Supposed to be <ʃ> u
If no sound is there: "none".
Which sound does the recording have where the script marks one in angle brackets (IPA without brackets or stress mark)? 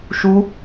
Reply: ʃ